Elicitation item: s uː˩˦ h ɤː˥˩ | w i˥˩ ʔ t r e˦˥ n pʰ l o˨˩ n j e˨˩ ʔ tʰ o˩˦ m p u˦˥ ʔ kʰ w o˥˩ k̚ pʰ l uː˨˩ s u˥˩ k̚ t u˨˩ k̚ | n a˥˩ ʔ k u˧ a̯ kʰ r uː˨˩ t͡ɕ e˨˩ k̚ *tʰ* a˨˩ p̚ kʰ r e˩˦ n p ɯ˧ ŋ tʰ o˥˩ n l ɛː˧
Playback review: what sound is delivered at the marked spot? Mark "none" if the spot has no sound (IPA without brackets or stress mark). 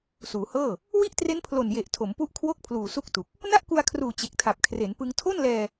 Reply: tʰ